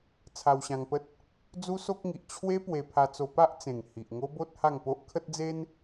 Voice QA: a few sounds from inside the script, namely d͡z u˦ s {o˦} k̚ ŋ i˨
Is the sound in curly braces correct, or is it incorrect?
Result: correct